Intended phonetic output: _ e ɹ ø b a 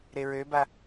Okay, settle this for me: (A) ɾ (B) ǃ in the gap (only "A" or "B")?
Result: A